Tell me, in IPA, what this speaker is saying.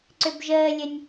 ǀ ʏ b ʒ əː lʲ ə nʲ

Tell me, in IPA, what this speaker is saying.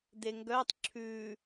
d e ŋ ɡ œ tˤ ǁʰ ʉ

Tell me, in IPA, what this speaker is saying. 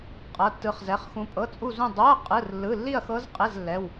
qʼ ɤ˧˥˧ tː ɯ˦˥ χ z ɛ˧˥˧ χ x ũ˦˥ pʼ ɤ˧˥˧ t͡sʼ u˥˧ z ũ˥˧ dˤ u˧˥˧ ɐ̯ qʼ ɯ˧˥˧ r lː ɯ˧˥˧ lː i˥˧ ɐ̯ x ɤ˦˥ z qʼ e˧˥˧ z lː ɛ˧˥˧ w

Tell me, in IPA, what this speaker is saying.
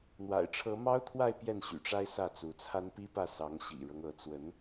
n̪ w a̰˨˩ ɪ̯ ʈ͡ʂʰ ɤ˧˥ m ɑ˥ ʊ̯ t̪ʰ w a˥˧ ɪ̯ p j ɛ˥˩ n ɕ y̰˨˩ ʈ͡ʂ a˥ ɪ̯ s ä˥˩ t͡s u˧˥ t͡sʰ a˥ n p i˥ p ä˥˩ s ɑ˧˥ ŋ ɕ ḭ˨˩ ɻ ɤ˦ ŋ ɤ˧˥ t͡s w ə˧˥ n

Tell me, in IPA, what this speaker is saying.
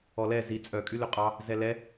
ɔ l ɛ z i t͡sʼ œ kʼ y l ø qʼ ɑ | z ɛ l ɛ

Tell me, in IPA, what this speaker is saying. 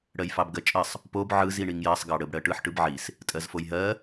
ɽ ɜ j f ɑ b ɡ ɜ t͡ʃʼ ə sˤ | p o b ʕ ɯ z i ɳ i ŋ j ɜ sˤ ɡ ɑ ɽ ə b ɽ ɜ ʈ ɯ ħ ʈ ɯ b ʕ i s | tʼ ɜ z f o j ɦ ɜ

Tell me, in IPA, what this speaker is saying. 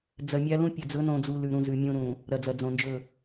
d͡z ɐ˨ mʲ a˦ l ũ˦ pʲ ɐ˨ d͡z ɵ˨˦ n õ˨ d͡z u˨ l ʉ˨ ɾ ũ˨ z ʉ˨ mʲ õ˦ ɾ ũ˨ | ɾ ɐ˨ d͡z ɐ˨ d͡z õ˨ n d͡ʒ ɵ˦˨

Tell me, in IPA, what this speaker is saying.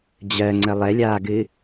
d͡ʑ ɜ ŋ͡ǀ ə lˠ ɛ lʲ aː ɡ ɨ

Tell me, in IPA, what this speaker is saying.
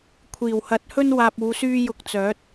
kʷʰ iː˨˩ w h ɐ˨˥ t̚ h ɵ˥ n w aː˧ p̚ uː˨˧ s yː˥ j ʊ˧ k̚ t͡s œː˨˥ t̚

